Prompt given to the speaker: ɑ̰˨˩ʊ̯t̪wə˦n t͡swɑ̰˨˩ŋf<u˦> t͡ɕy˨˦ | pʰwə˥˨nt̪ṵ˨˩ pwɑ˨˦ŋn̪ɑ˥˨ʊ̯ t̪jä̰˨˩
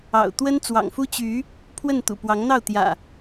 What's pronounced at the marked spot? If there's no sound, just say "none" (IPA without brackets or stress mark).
u˦